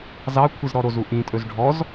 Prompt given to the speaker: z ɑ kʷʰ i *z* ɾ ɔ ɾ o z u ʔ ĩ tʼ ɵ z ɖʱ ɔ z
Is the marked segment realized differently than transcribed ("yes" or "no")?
no